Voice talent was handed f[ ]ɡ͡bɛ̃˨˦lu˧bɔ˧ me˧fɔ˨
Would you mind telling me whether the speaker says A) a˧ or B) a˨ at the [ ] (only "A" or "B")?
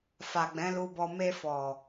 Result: B